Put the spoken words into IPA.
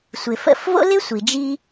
sʷɪ˩fə̰˧f vo̰˥lɪ˥ sʷi˩d͡ʒi˧

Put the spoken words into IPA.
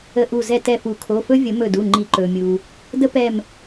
ə˧˩ʔu˧˩ zɛ˧˩tɛ˧˩fu˨˩˦ kʰo˩˧˩fɵ˦˥vʲə˨˩˦ mɵ˧˩du˩˧˩ ŋ͡ǃi˨˩˦ǃɵː˩mʲuː˩ | də˦˥pɛ˧˩m

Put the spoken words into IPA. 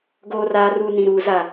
ɡoː˨raː˨ruː˨ nĩ˨ɾuː˨ za˦˨

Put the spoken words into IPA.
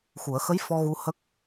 xu˨˩˨ə̯xə˧˥j fɔ˧ɣu˧hə˦˥k̚

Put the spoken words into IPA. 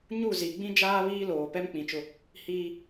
ɲu˦˨zi˨ ɡ͡bĩ˦d͡ʒaː˦ βiː˦loː˨pɛ˦m k͡pĩ˨t͡ʃʊ˦˨ | hiː˦

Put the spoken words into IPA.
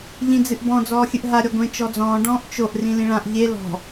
ʎĩd͡zɨʔbɔ̃ d͡zɔːxʲɨʔɦa ɾʲɔɡʷẽ t͡ʃɔd͡zɔ̃ː ɖɔ̃ːʔt͡ʃoʔ rĩlĩɭãʔ ʎe lɔ̤

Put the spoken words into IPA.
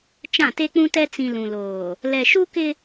t͡ʃã˦˨te˦k͡pũ˦tɛ˦ t͡sĩ˨ lũ˨loː˨ | lɛ˨ʃu˦kɪ˦

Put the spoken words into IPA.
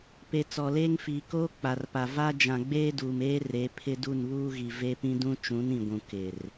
pe˨t͡sɔ˨leː˦ŋfiː˨ koː˦k͡pa˨rpa˨ va˦ d͡ʒã˨ɡ͡beː˦duː˨m eː˦ re˨˦ pʰɪ˦ du˦˨nβuː˦ɣi˨ ve˦pĩ˦dũ˦ t͡ʃũ˨˦nĩ˨ɡʷũ˨ kɪ˨r

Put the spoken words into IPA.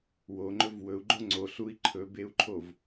woŋ͡ǃɵv wɵu̯ɡ͡ǃo ŋ͡ǀoɬui̯ ǃʰɵbeu̯ǃʰov

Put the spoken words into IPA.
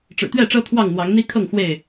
ʈ͡ʂɻ̩˨˩t̪ɥɛ˥˨ʈ͡ʂɤ˦ t̪ʰwɑ˥˨ŋn̪wɑ˨˦ŋ n̪i˦kʰɤ˥˨ŋ xwe˥˨ɪ̯

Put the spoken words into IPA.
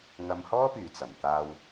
ŋɐ˧mhɔː˥pyː˨ t͡sɐ˨˩m t̪aː˧w

